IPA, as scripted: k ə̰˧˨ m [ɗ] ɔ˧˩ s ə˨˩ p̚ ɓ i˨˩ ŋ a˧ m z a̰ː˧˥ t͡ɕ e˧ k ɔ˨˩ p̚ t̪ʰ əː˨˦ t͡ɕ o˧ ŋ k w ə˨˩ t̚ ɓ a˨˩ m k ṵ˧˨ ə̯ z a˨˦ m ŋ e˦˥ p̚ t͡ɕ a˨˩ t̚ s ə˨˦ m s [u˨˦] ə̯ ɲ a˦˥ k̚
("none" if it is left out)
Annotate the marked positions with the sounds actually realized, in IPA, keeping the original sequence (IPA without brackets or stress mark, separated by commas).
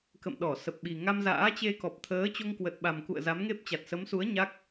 ɗ, u˨˦